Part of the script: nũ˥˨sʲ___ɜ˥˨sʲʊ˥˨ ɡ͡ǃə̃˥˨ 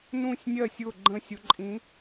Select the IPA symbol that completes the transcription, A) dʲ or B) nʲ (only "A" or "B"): B